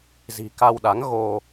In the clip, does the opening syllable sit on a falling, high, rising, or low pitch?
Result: low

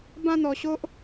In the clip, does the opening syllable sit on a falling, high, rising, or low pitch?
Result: high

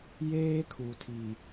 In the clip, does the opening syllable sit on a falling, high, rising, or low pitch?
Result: high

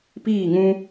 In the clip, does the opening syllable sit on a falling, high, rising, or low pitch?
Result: falling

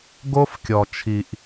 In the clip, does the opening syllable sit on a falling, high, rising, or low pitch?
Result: high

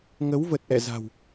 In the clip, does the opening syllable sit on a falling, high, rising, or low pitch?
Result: rising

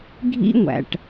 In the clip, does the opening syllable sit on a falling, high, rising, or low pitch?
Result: high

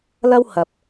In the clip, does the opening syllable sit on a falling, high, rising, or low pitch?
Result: high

